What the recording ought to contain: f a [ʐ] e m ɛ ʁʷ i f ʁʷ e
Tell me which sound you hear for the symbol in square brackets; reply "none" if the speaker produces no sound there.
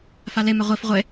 l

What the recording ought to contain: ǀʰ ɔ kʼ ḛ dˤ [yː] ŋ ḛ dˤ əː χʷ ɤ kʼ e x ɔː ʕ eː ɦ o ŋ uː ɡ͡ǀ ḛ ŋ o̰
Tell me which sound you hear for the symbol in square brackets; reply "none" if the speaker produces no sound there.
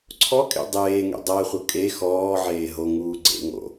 eː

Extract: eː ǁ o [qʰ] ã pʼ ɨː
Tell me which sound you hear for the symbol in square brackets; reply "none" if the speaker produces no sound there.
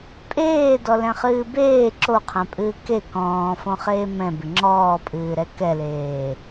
qʰ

